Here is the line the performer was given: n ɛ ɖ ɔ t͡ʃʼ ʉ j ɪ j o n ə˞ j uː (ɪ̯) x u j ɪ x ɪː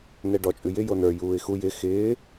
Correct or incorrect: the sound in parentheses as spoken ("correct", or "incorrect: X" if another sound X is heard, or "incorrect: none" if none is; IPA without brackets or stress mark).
correct